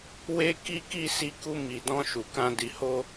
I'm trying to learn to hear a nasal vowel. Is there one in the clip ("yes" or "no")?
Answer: yes